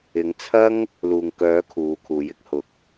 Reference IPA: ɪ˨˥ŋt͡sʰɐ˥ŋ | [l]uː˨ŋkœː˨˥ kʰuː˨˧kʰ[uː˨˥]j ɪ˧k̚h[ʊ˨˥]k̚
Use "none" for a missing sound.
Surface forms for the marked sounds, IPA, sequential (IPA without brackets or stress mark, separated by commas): l, uː˨˥, ʊ˨˥